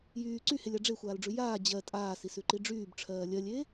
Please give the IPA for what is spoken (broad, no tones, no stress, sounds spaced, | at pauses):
j yː ǀ y h e lʲ a ɖ͡ʐ e xʷ aː l ɖ͡ʐ ʉ j aː d͡ʑ ɜ tʼ aː s i s ʉ ǃ i ɖ͡ʐ yː b ʈ͡ʂʰ ɜː lʲ ɜ lʲ eː